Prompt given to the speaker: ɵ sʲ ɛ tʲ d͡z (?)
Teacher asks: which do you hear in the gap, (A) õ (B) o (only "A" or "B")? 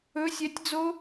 B